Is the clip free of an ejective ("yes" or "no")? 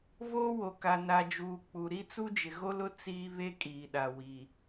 no